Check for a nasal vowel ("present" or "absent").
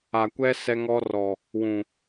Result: present